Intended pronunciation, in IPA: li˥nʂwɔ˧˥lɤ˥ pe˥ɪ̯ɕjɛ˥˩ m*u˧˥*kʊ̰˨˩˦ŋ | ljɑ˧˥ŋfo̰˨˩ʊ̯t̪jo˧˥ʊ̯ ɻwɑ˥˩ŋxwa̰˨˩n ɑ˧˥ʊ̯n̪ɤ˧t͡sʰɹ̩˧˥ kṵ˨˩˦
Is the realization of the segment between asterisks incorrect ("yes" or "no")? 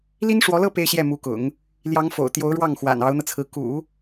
no